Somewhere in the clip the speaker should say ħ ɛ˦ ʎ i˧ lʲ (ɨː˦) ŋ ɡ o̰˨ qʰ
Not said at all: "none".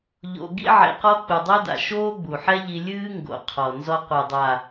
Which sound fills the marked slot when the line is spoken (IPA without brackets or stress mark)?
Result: ɨː˦